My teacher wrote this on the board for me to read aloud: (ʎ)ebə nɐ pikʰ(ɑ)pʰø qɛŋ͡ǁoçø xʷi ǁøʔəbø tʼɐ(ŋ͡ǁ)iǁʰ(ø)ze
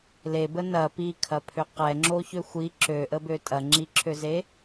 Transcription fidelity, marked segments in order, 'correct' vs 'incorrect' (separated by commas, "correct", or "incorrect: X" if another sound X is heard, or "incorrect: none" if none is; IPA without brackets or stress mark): incorrect: l, incorrect: ɐ, correct, correct